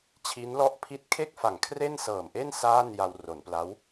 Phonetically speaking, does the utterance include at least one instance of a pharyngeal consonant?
no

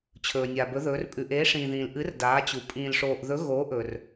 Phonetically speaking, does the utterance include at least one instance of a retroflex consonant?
yes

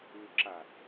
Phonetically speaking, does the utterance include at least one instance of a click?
yes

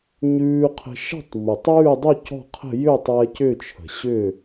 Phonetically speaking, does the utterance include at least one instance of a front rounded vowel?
yes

